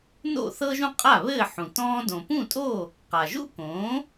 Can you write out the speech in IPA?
no̰˥˩θɤ˥ʒũ˥qʼa˥˩ βɘː˥˩ħũ˩ tɔ̃ː˧dõ˩pũ˥˩tʼo˥˩ | qa˩ʒṵ˥kõː˩˥

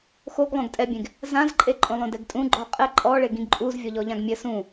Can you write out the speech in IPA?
xoɡlˠõɡ tʼɛbʲẽɡ | zãzǃʼe ǃʼõlˠõdɛɡtʼũ ɡ͡ǃɔqʼɛ ǃʼɔ ɭeɡĩɡǃʼuz vʲɔʎɔʎãɡmʲɘ sũ

